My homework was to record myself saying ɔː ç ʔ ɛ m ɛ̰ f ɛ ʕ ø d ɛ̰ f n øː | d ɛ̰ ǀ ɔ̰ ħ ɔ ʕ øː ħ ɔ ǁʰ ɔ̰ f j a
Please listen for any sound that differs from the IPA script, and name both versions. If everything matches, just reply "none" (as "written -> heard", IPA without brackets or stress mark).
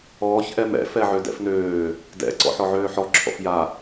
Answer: none